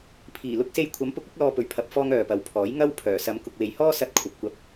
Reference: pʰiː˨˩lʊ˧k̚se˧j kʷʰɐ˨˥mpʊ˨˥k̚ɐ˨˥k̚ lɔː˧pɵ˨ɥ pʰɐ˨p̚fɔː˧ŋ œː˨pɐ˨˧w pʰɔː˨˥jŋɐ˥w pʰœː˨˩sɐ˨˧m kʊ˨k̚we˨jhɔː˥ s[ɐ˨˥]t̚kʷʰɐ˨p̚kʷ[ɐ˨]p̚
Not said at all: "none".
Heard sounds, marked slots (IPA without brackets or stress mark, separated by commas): ɐ˧, ɐ˧